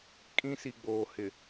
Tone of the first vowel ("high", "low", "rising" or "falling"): high